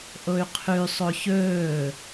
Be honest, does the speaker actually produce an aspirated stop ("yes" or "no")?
yes